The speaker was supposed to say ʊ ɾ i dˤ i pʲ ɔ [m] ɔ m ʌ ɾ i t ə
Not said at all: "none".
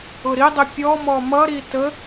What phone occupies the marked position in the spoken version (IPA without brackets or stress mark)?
m